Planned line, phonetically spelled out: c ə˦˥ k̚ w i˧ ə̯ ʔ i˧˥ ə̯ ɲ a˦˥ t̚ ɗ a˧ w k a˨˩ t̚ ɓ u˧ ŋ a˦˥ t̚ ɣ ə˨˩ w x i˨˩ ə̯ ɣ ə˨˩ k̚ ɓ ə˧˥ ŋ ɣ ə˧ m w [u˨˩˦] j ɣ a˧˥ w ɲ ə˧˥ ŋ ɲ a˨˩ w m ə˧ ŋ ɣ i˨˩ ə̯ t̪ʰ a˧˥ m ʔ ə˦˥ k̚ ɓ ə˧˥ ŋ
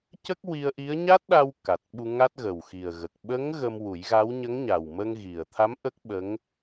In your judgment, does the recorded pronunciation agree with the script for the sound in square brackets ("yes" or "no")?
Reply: yes